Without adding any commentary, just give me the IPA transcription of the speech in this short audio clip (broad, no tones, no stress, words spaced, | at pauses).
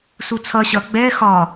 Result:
sut͡sʰʌ ɕʌ ɡ͡bɛ xɒ